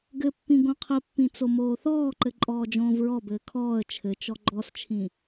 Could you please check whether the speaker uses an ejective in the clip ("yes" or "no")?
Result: yes